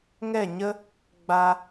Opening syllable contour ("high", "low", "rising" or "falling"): falling